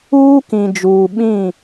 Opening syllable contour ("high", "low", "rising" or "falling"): high